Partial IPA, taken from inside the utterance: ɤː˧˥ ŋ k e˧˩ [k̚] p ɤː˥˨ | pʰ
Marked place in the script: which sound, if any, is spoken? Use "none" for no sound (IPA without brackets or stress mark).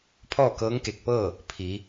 k̚